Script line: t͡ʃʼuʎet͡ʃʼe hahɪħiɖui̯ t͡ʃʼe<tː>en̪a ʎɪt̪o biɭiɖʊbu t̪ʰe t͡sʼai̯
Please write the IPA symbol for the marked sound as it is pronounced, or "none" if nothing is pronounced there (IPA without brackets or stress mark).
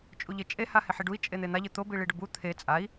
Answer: n̪